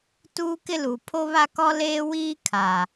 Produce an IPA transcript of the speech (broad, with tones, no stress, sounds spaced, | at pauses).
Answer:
t uː˦ k ɪ˦ l u˨ pʰ o˦ β a˦ k ɔ˦ l eː˦ w iː˦ kʰ a˨